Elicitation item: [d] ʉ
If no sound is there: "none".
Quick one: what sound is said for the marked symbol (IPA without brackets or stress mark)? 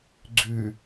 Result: ɡ͡ǀ